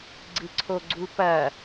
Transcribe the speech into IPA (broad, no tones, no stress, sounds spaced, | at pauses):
ɡ͡ǀ ɨ ǀʰ o ɡ͡ǀ u p ɐ